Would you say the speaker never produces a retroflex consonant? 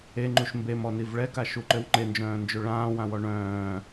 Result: no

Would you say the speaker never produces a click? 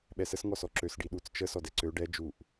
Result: no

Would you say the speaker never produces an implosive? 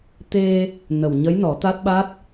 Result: no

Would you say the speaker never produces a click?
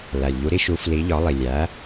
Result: yes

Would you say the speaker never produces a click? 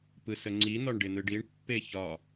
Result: no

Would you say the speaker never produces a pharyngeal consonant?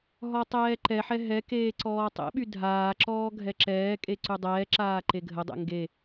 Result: no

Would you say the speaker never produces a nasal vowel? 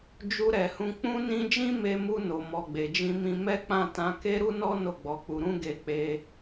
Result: no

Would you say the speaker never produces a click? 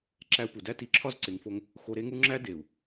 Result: no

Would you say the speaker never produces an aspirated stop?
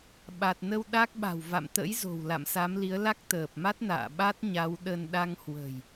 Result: yes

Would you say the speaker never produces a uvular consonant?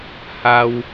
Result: yes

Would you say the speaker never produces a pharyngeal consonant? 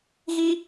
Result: yes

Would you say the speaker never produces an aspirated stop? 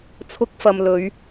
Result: no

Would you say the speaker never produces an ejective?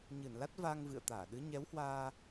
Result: yes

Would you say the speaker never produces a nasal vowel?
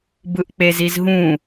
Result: no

